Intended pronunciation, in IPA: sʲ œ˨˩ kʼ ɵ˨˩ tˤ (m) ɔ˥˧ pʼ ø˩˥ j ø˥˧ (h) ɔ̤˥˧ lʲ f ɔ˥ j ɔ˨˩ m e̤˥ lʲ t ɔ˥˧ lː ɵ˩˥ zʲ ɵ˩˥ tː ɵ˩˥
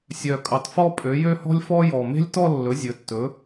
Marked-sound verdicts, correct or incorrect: incorrect, correct

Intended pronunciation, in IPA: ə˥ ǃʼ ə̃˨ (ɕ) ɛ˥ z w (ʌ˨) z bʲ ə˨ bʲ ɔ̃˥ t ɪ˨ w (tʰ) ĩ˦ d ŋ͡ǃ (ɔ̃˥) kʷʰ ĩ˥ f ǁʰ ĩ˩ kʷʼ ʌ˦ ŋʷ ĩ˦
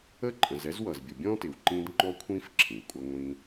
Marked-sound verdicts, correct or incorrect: incorrect, correct, incorrect, incorrect

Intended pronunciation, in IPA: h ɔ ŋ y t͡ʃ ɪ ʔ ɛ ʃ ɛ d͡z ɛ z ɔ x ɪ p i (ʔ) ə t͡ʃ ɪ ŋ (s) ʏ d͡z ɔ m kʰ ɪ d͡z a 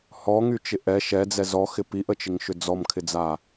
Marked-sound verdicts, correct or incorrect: correct, incorrect

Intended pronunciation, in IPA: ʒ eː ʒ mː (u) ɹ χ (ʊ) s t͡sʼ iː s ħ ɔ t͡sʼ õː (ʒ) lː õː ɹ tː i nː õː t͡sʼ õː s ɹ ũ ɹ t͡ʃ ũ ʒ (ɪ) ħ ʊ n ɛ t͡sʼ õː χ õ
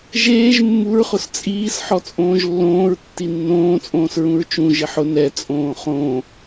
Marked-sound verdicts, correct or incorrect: correct, correct, correct, correct

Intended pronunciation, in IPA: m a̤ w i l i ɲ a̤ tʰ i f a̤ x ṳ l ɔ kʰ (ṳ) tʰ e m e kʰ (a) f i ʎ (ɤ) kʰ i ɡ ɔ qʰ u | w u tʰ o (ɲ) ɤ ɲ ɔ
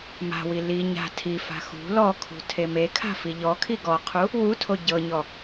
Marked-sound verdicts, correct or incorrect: correct, incorrect, incorrect, incorrect

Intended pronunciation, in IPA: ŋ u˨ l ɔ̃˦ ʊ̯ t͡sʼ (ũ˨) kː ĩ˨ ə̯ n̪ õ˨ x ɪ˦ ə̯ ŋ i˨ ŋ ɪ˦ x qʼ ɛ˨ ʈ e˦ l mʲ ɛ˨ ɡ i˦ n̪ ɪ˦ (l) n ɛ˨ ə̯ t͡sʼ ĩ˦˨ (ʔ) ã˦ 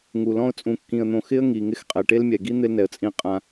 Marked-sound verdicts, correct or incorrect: correct, correct, incorrect

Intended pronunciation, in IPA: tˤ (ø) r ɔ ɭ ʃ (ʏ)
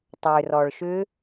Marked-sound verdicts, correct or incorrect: correct, correct

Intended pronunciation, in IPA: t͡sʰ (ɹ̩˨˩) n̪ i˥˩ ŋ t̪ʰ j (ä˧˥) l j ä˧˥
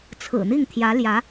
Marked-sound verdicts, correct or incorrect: correct, correct

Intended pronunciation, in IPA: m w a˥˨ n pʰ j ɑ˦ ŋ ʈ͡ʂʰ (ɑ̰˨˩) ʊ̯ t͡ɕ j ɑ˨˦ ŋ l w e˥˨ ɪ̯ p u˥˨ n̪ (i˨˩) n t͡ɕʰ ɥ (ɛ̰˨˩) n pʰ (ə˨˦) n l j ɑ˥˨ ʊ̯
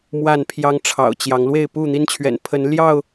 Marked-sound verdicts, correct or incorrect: correct, incorrect, correct, correct

